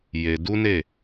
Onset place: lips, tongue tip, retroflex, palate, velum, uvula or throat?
palate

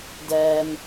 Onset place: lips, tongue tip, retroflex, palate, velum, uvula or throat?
tongue tip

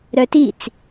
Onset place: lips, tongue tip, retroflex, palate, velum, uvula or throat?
tongue tip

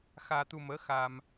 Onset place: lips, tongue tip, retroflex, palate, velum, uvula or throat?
velum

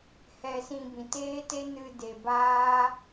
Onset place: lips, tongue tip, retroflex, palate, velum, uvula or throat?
throat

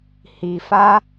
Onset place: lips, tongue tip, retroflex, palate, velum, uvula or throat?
throat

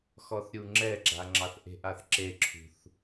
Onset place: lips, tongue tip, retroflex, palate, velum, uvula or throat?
velum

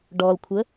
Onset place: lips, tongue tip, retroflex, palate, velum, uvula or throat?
retroflex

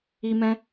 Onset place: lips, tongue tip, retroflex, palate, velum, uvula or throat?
lips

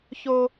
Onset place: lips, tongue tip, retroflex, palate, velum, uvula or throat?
palate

